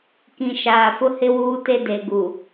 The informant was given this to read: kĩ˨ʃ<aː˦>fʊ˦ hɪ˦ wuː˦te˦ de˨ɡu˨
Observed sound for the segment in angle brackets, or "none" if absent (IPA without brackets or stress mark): aː˨